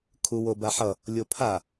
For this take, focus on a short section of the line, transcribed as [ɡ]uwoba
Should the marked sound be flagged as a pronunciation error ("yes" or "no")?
yes